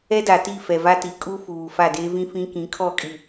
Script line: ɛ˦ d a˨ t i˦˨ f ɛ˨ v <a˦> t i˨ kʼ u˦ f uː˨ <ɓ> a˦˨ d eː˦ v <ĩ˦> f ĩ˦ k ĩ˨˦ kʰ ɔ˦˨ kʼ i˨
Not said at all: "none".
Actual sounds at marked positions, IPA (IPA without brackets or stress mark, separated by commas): a˦, f, ĩ˦